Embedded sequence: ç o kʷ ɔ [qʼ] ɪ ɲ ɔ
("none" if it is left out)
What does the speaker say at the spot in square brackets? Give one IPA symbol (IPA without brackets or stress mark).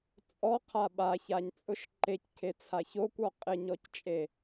qʼ